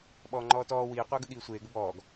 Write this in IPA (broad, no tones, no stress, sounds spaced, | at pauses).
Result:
ɓ ɔː ŋ͡ǃ ɔː t ɔː w iː qʷ əː ɡ ə ɠ iː sʷ eː ɡ ə b ɔː ɡ